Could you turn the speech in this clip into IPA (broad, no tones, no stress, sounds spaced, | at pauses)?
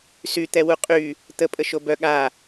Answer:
s y t̪ ɛ w u qʼ y | t̪ ə pʼ ə ʃ o b œ ɠ a